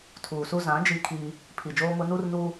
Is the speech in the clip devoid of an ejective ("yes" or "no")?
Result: yes